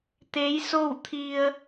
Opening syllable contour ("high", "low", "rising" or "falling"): rising